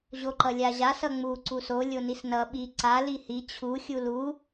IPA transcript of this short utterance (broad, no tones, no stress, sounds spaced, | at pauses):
ʑ o ǃ ʌ lʲ a ʑ a s ʌ ŋ͡m u ǀ u s o lʲ o n i s n ʌ ɓ i ǀ a l i h i t͡ɕʰ u xʲ u l u